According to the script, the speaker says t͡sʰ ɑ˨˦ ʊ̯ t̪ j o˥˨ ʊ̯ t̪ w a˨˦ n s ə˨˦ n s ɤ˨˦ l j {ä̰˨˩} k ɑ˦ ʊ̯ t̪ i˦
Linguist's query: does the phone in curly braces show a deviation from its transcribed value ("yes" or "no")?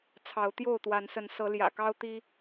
no